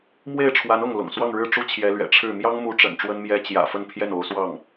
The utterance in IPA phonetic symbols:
mwe˥˩ɪ̯ʈ͡ʂʰwa˧˥n ʊ˥˩ŋ lʊ̰˨˩ŋ swɑ˥˧ŋɻɻ̩˥˩ ʈ͡ʂu˥t͡ɕʰjɛ˧˥lɥɛ̰˨˩ ʈ͡ʂʰɻ̩˥˩ mjɑ˥ŋmu˧˥ʈ͡ʂə̰˨˩n ʈ͡ʂwə˥nmjɛ˥ t͡ɕjä̰˨˩ fə˥˧npʰjɛ˥˩n o˧˥ʊ̯swɑ˥˩ŋ

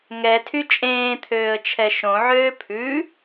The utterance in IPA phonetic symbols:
ŋɛtʰy t͡ʃʼẽːt̪ʰøːə̯t͡ʃʰɛ ʃõʕøː pʰʉ

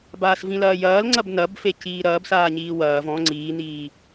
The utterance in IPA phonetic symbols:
baːsvĩlɐːjɐːl ŋ͡ǀɐbnɐbfe ciːɾɐːbsaː ɲiːwɐːv ɔ̃ ŋ͡ǀiːniː

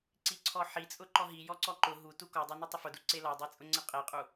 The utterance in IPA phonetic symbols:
ǀiǀʰɔħi t͡sʼʊǃɔɦi jɔǀɔǃʊ ɦu tukɔdˤe nutˤʊfʊdu ǀelɔdˤe t͡sʼʊŋ͡ǀeqʼeqʼu

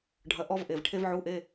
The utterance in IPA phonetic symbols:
ɖʱɐ˧˥˧ ʔɔ˥vʔe˩˧˩v ʈʰe˥vʕu˧˥˧ʔe˧˥˧

